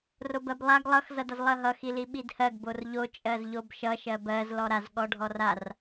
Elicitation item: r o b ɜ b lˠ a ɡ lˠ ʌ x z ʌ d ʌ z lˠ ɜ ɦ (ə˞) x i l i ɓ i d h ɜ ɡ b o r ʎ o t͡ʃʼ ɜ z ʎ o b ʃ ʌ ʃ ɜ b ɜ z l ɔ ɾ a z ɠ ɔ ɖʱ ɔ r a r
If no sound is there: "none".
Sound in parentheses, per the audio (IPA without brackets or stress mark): ʌ